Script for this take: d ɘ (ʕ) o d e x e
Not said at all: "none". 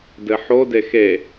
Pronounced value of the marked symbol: ħ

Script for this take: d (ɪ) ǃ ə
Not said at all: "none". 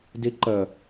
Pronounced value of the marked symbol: i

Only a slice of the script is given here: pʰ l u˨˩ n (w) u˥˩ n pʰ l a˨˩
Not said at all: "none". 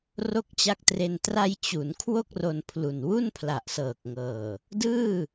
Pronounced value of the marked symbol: w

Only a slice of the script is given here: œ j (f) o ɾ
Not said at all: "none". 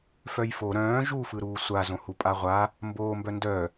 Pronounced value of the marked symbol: f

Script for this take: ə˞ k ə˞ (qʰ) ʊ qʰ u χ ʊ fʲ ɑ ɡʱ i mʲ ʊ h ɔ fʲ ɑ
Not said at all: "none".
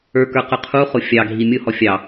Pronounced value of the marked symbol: q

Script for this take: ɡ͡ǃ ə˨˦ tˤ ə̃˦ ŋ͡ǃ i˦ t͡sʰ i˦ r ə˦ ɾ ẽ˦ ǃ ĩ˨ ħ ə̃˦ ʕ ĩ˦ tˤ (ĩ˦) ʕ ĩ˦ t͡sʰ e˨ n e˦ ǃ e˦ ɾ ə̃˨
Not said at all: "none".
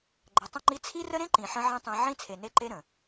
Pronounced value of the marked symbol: ĩ˦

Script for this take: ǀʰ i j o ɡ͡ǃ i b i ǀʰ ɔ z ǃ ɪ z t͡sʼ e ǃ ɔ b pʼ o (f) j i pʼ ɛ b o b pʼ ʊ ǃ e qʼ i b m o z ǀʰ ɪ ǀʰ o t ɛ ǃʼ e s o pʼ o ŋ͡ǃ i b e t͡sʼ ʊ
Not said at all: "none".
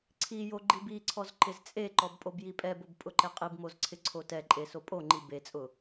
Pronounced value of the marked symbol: b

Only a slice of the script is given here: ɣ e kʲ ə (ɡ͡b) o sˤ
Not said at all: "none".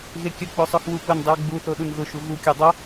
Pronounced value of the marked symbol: k͡p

